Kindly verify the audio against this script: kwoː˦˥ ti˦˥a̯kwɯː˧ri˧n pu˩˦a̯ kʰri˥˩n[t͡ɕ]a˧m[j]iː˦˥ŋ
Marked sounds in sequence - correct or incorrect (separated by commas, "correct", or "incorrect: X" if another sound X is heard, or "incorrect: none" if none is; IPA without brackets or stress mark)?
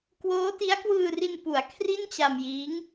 correct, correct